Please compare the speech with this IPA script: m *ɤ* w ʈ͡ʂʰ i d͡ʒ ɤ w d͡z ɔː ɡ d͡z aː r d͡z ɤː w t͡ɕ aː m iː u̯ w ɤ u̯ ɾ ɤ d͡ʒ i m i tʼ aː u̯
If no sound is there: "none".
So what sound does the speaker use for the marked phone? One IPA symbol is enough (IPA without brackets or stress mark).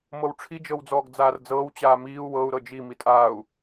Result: ɤ